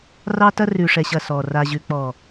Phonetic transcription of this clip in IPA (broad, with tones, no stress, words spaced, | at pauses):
rɑ˦tɐ˦ rʉ˨ʂɛ˨ɕɐ˨ sɔ˨ ra˨ʑʉ˨k͡pɔ˨